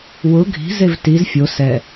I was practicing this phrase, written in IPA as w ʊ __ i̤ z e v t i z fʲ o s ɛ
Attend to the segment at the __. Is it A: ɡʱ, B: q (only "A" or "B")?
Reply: A